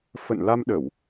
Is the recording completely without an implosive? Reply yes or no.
no